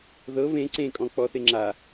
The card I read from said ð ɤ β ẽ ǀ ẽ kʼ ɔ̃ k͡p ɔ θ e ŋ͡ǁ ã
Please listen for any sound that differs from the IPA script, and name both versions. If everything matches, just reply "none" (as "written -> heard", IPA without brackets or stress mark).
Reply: ã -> a